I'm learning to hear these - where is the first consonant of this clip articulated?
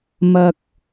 lips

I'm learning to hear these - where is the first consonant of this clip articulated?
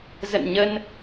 tongue tip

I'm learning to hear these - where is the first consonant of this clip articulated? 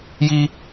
palate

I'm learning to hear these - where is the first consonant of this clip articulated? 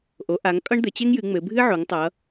throat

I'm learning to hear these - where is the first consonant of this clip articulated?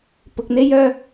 lips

